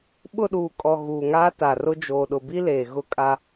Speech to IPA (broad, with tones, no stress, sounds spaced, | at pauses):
ɓ ʊ˦˨ ɗ uː˨ kʼ ɔ˨ ɣ uː˨ ŋ aː˦ t a˨ r ʊ˦ d͡ʒ oː˨ ɗ ʊ˨ b i˦ l eː˨ ɣ ʊ˦ kʼ a˦